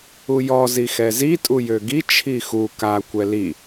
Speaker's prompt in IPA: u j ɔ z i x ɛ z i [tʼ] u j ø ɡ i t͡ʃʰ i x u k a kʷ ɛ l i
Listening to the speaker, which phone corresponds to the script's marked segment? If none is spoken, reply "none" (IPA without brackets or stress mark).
tʼ